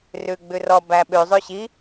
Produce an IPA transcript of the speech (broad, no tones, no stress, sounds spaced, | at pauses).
r ʉ ɡ͡b ʉ r ɔ b æ ɓ ʉ zˤ ʉ ɕ i